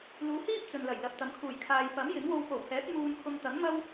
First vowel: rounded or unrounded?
rounded